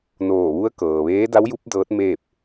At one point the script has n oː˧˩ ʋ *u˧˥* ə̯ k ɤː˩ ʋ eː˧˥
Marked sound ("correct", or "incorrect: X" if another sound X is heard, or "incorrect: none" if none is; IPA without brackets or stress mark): correct